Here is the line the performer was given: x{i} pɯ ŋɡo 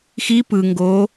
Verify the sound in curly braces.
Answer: correct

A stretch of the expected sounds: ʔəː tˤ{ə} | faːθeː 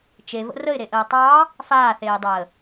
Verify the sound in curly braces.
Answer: incorrect: ɑ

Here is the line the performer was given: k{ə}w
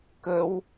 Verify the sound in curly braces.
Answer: correct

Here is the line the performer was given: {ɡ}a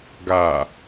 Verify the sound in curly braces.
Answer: correct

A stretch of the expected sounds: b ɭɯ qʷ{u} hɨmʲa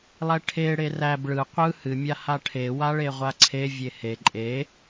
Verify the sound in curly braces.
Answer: incorrect: ɯ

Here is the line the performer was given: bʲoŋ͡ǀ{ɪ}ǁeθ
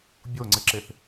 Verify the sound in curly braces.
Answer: correct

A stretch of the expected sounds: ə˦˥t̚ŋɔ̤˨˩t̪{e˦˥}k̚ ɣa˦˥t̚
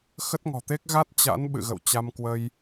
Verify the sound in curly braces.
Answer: correct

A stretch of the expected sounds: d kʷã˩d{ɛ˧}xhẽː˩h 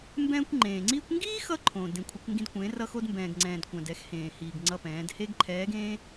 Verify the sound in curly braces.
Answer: correct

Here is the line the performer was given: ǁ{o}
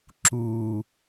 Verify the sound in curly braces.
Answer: incorrect: u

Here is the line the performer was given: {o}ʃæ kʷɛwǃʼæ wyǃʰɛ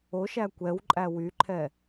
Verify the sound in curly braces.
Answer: correct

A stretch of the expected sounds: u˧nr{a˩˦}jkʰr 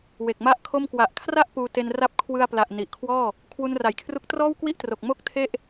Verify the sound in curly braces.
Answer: correct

